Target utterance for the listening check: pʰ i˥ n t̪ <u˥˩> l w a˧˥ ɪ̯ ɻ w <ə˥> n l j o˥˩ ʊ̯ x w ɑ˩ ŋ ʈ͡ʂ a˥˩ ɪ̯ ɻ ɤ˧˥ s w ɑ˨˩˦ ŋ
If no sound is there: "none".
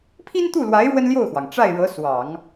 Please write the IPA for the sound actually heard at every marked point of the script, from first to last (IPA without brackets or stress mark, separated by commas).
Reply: u˥˩, ə˥